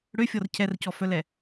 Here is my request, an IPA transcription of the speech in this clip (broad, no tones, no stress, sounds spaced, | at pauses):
ɽ ø fʲ ɔ r cʰ ɛ r c ɔ f œ l ɛ